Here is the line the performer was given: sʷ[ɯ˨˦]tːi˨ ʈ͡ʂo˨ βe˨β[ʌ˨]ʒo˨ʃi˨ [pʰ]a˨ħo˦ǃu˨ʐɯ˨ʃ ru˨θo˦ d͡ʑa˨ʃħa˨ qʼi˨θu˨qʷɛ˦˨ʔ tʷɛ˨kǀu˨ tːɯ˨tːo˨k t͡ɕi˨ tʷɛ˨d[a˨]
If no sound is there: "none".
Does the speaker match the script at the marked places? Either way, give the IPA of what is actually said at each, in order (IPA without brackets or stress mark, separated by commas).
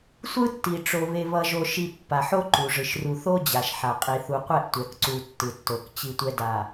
ɯ˦, ʌ˨, pː, a˨